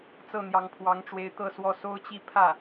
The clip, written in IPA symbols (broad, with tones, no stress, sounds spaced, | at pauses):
t͡s ɤ˥˩ n̪ j ɑ˧˥ ŋ pʰ w ɑ˧˥ ŋ ʈ͡ʂ w e˧˥ ɪ̯ t̪ ɤ˥˧ s w ɔ˥˩ s o˥ ʊ̯ t͡ɕ i˥˧ pʰ ä˥˩